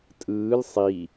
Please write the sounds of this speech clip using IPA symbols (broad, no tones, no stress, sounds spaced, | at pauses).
tʼ ɯː l sˤ i